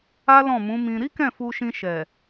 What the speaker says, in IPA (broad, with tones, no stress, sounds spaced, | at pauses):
a˦ l ɔ̃˦˨ m ũ˨˦ m ĩ˧ ɾ i˦ k ɛ̃˦˨ f u˧ ʃ ĩ˧ ʃ ɛ˨